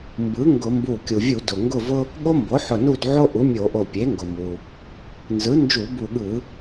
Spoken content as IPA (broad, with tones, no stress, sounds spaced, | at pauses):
m b ɯ˩˥ ŋ ɡ ʊ˧˩˧ m b u˧˩ kʲ u˩ vʲ u˧˩˧ d ʊ˩ ŋ ɡ ʊ˥˨ v ʊ˥ | ɠ o˥ m b o˩˥ ħ ʊ˧˩ n u˥˨ d ʕ o˥ ʔ u˩˥ mʲ o˧˩˧ ʔ o˧˩ pʲ e˩˥ ŋ ɡ ʊ˩ m u˩ | n z ɯ˩˥ n d͡ʒ u˧˩˧ b u˧˩ ɠ ɯ˧˩˧